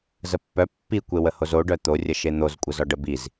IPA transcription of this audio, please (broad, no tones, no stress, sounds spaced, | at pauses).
z ə pː œ pː i kʷ e w ə h o z o ɖ œ t̪ o rʲ ə ʃ e n̪ o z kʷʼ ə z ɔ ɖ ə b i z